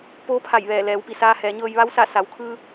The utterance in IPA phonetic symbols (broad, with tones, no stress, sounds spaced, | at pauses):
p oː˧˥ pʰ a˧˩ j ʋ ɛː˧˩ l ɛː˩˧ w p i˩ s aː˧ h ɛː˩˧ ɲ ɤː˧ j ʋ a˧˥ w s a˧˩ s a˩˧ w kʰ ɯː˧